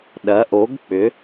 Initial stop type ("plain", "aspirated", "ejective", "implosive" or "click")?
implosive